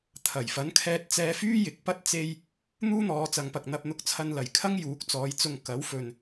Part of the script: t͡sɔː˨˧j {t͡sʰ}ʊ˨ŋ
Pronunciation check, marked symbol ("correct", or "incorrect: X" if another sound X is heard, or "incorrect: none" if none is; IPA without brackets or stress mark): incorrect: t͡s